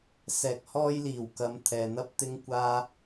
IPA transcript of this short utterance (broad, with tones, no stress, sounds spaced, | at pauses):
s ɛː˨ k̚ h ɔː˥ j l iː˨˩ w k ɐ˨˧ m t̪ʰ ɛː˨ n̪ ɐ˥ p̚ t̪ ɪ˥ ŋ kʷ aː˥